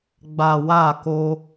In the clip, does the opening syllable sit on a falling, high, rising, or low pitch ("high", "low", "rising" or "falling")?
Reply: low